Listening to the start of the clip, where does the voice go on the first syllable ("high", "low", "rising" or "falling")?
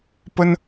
high